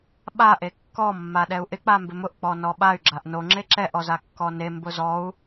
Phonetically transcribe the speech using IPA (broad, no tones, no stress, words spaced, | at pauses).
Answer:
ɓa ʔekːɔ mːaɗɛu̯ʔɪ k͡pambɪmʊʔ k͡pɔnɔɓay̯ ɡ͡ǁaʔno ŋ͡ǁeǁɛʔ ɔzakːɔne mbʊzɔu̯